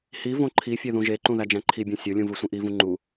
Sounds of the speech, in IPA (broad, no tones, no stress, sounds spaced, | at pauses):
h i v õ ǃʰ i fʲ e ð ũ ʒ e ǃ ũ ð æ d͡ʒ æ̃ ǃʰ i bʲ õ sʲ o lʲ ũ v ɯ sʷ ĩ ʔ i v ũ ŋ͡ǃ u